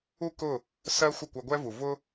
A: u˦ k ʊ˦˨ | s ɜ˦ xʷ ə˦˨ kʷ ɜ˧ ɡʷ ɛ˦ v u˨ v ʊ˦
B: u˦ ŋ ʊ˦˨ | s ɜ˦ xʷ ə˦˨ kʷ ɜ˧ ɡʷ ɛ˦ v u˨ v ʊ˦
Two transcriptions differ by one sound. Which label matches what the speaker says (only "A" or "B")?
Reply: A